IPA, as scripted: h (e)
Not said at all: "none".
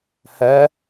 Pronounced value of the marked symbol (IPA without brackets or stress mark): ɛ